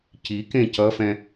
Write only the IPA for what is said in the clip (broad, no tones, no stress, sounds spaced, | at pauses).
c i k ẽ c ʌ f ɛ̃